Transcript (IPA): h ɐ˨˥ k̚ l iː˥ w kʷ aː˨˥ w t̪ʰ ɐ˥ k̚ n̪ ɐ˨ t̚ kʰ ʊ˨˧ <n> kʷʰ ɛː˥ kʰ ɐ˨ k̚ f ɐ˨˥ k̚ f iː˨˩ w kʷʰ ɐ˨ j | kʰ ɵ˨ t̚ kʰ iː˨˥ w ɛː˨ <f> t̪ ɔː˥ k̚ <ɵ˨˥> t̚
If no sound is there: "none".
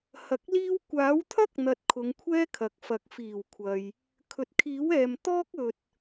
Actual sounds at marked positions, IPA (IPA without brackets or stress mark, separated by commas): ŋ, m, ɵ˨